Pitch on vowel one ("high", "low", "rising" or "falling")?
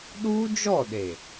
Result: high